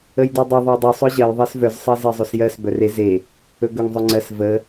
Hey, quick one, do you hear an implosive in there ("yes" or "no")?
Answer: no